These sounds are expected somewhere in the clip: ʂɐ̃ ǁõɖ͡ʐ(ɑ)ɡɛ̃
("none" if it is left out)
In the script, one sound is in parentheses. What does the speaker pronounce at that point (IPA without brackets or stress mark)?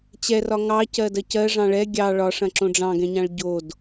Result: ɑ̃